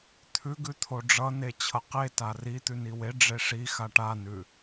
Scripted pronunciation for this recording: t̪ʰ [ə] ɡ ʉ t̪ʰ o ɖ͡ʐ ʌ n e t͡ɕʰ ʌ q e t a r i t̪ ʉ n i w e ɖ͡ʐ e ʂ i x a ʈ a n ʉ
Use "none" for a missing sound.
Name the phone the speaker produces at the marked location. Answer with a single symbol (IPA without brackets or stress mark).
ʉ